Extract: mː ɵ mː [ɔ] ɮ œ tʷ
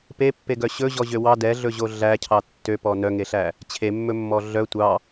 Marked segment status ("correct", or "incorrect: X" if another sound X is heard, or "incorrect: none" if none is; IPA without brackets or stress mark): correct